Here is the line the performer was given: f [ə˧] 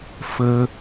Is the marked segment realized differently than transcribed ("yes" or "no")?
no